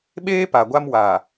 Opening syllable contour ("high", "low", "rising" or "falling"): high